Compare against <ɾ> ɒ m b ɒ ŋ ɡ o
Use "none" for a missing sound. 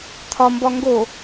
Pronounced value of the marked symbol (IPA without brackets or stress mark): t̪ʰ